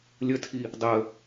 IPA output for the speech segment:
lʲətʰi | dˤə

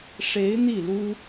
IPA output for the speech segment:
ʂe˧˥ɪ̯ n̪i˥˩lu˥

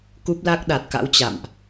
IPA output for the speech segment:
ku˦˥p̚la˦˥k̚ɗa˨˩t̚ka̰˧˥w t͡ɕa̰˧˨mʔ

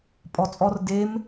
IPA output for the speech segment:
pʼɔt͡sʼɔr dem

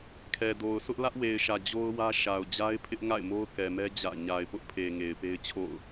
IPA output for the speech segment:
kʰɛ˨do˨ʊ̯ sʰʊ˦ʔ lä˦ʔwe˨ɪ̯ʃä˨ d͡ʑo˦ʊ̯wä˦ʃa˨ʊ̯ d͡ʑa˦ɪ̯pʰɪ˦ʔ ŋa̰˦˨ɪ̯mo˦ʊ̯kɛ˨mɛ˦ d͡ʑä̰˦˨ ɲa˨ɪ̯pʊ˦ʔpʰe˨ ŋe˨ɪ̯pe˦ɪ̯t͡ɕʰo̰˦˨ʊ̯

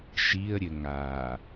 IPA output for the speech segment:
ʃiə̯ɾʲɘ ŋa

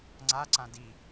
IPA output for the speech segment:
ŋ͡ǀaǀã di

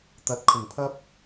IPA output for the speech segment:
t̪ɐ˨˥t̚kʰʊ˨˩ŋpʰɐ˥p̚

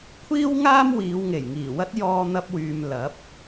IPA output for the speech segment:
kʷʰiː˥w ŋaː˥mwiː˨˧w ŋe˨˩jŋiː˨˩wɐ˥t̚ jɔː˧n̪ɐ˧p̚wyː˨m lɐ˨˥p̚

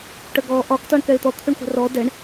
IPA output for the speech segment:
ʈəɡɔ ʔɒk tɔɳkɛɪ̯t̪ɔ t̪ʰʉɳχʷɛ̤rɔ dɛɳ

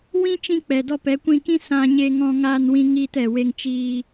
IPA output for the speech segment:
wĩ˦t͡ʃĩ˧k͡pɛ˨dɔ˧ pɛ˨˦kʷĩ˧kĩ˦ sã˧ɲe˧ŋɔ̃˧ ŋaː˧nwĩ˧ŋiː˧t ɛ˨we˧ŋt͡ʃiː˧

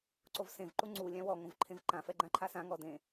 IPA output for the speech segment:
ǀovsẽv ǃuŋ͡ǀu lʲãwɔ ŋõvǃʰẽvǃã fɛɡ͡ǃãǃʰasã ŋɔdẽ

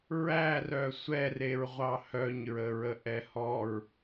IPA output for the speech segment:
ɹærœ sʷɛreɹʁʷɑ hœɲɹəɹə ʔɛhɔɹ

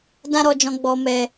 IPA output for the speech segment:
dã˦ɾɔ˧d͡ʒɔ̃˧ ɡ͡bɔ˨mɛ˨

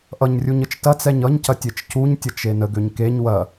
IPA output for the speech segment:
ʔʌɲrʲuɲət͡ʃ tɐt͡sɛɲ ʌɲcɐtʲet͡ʃ cuɲtʲʌt͡ʃe nəɡøɲ keɲ wɐ

